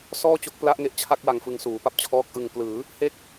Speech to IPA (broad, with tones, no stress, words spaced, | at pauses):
sɔː˥˩t͡ɕo˦˥k̚pla˦˥ʔŋe˦˥ʔ t͡ɕʰa˥˩k̚wa˧ŋfɯ˧ŋ suː˩˦pa˦˥p̚t͡ɕʰɔː˦˥k̚ʔɯ˧ŋ plɯː˩˦ | he˥˩k̚